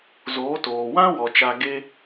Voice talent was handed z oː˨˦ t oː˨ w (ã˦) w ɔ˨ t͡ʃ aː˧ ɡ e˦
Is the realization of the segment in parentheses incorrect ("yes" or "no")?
no